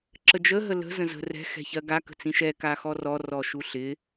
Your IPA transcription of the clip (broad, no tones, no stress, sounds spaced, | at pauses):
ǁ ə d͡ʒ ə ɦ ə l ə̤ z ə̃ z ə̤ r ɛ̤ x ɛ̤ ç ɜ ɡ a k ə̤ t͡s ĩ ʃ ɛ k a x ɔ r ɔ r ɔ ʃ u ɬ ɪ